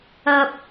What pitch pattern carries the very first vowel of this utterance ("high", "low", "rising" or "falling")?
high